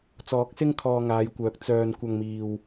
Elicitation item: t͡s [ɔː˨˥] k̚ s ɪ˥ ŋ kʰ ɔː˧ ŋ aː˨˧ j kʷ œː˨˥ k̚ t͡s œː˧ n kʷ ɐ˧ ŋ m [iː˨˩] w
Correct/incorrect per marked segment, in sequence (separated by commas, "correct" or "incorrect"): correct, incorrect